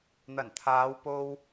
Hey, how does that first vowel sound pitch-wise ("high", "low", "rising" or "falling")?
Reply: low